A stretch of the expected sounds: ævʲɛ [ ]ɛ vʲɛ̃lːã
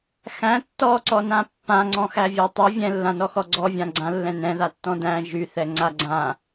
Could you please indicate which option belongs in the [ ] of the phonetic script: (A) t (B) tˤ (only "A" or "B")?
B